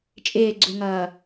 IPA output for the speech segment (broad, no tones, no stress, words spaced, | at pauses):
t͡ʃʼɪːɡ͡ǀuŋʌː